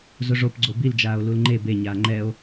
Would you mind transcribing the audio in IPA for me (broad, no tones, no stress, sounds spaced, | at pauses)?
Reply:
z ʊ ʐ o p ɡ͡ǀ o b i l d͡ʒ aː o̯ l u l ŋ͡ǃ e b e ɲ aː ŋ͡ǃ ɛ o̯